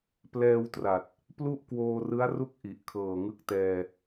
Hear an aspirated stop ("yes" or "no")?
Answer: yes